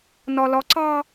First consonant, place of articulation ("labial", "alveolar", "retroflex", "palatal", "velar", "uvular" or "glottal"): alveolar